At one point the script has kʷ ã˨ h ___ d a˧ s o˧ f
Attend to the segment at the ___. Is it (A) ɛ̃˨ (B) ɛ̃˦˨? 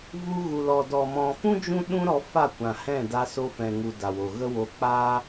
B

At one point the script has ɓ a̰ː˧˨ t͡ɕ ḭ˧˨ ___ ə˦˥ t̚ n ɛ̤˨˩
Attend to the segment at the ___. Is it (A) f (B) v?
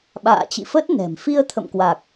A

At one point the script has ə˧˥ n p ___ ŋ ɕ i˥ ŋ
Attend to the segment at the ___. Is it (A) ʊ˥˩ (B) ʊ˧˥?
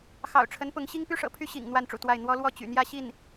B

